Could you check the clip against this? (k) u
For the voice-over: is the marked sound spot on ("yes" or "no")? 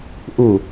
no